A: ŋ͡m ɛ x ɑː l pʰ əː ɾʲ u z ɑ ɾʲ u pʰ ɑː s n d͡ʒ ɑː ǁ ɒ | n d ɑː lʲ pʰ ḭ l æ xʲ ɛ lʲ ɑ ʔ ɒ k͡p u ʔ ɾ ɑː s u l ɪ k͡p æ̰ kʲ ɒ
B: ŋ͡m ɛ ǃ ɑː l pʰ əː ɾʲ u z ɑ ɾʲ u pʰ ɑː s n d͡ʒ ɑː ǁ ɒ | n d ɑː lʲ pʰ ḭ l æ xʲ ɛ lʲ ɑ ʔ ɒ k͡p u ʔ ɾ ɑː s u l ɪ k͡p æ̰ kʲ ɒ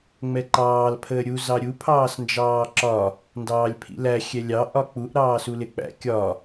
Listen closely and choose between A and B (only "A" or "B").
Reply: B